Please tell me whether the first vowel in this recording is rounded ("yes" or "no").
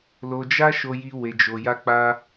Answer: yes